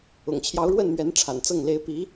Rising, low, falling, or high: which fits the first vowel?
low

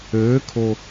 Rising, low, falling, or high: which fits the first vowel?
rising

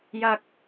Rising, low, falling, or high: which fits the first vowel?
low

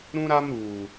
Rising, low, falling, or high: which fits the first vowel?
high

